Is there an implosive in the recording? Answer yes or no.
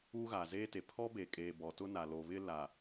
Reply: no